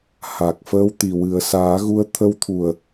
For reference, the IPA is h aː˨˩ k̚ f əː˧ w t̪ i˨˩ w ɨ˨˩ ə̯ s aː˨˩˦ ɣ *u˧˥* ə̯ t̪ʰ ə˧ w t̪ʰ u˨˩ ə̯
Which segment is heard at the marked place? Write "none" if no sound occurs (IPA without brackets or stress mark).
u˧˥